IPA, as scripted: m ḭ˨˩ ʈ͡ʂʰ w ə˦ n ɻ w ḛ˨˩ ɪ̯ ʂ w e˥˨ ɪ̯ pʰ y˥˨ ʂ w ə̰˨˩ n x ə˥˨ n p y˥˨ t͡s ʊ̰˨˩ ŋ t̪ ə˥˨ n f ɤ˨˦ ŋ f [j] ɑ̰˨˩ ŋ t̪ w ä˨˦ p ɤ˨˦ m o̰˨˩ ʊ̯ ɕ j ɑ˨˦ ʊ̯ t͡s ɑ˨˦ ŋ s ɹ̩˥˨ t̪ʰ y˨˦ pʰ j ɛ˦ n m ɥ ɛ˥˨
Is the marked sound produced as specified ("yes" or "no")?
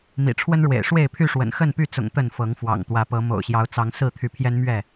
no